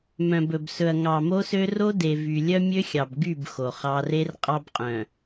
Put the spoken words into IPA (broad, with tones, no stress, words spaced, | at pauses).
mœ̃˨bɵ˨bsɵ˨ɐ̯ ŋɑ˨ mo˦sø˦ ro˦de˨ vy˨ lʲœ˦mʲø˦xʲɑ˨bɡy˦˨b xo˨χɑ˦ re˦r qʼɑ˦bqʼœ̃˨